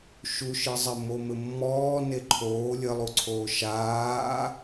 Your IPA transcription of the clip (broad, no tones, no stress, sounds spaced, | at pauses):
ʃ u ʃ ɨ zˤ ɘ m o m ɘ mː ɔː n e ǃʰ oː lʲ ɘ lˠ u ǀʰ oː ʃ aː